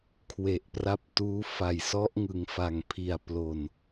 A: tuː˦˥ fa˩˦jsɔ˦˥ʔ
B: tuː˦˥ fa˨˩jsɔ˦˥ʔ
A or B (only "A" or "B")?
B